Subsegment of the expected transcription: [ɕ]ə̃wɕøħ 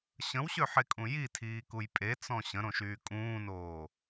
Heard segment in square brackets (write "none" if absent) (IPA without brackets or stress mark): ɕ